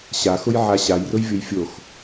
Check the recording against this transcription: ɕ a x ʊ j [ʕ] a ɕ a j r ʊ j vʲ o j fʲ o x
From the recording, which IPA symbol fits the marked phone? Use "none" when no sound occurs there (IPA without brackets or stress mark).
ʕ